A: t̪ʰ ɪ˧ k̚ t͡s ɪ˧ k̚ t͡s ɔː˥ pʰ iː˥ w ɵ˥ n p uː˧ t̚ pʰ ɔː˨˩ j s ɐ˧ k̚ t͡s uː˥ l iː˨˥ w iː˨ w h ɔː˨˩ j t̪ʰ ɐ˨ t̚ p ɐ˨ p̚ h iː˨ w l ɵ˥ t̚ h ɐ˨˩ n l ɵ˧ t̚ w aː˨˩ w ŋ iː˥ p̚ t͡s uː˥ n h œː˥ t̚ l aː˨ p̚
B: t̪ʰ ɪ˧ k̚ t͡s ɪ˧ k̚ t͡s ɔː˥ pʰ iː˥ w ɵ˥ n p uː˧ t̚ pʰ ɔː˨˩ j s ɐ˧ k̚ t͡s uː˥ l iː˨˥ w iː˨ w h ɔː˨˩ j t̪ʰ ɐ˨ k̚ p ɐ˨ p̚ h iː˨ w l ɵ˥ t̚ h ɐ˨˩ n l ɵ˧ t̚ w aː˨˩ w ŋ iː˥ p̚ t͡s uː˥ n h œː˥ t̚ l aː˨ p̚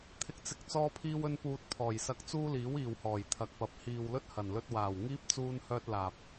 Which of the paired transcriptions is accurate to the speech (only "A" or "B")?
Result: B